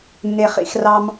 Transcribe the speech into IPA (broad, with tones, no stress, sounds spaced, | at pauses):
nː e˨ χ ḭ˧ x r ɑ˧ m